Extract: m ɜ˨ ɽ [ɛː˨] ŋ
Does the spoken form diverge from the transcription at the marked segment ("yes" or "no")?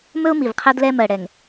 yes